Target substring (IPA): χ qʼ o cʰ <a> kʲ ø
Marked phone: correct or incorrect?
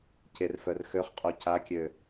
correct